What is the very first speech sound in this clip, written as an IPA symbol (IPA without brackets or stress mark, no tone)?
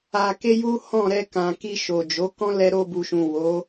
a